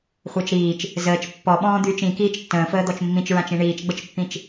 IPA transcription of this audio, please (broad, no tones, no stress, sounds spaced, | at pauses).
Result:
χʷ əː t͡ʃ ɾ iː t͡ʃ | z əː t͡ʃ pː ɔ ɓ ɔ̃ː d̪ yː t͡ʃ ĩ k iː t͡ʃ tː ə̃ː f əː d̪ ɔ t͡ʃ mː ĩ t͡ʃ ɹ ã t͡ʃ ĩ ɳ iː t͡ʃ ɡ͡b ə t͡ʃ pː ĩ t͡ʃ